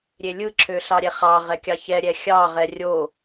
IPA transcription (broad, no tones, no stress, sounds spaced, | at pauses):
ɾʲ e lʲ ɯ ǁʰ ø ɬ ɑ ɾʲ ɛ χ ɑ ʁ ɛ kʲ ɑ ç ɛ ɾʲ ɛ xʲ ɑ ʁ ɛ rʲ o